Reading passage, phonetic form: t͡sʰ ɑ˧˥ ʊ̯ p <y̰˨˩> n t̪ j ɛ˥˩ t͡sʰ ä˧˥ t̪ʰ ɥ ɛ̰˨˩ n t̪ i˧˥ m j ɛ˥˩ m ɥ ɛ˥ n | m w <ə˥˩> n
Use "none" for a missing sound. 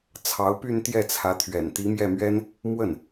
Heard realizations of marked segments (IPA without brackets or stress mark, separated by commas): y˥˧, ə˥˩